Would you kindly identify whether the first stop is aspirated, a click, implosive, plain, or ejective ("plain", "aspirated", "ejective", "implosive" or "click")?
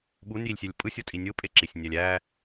implosive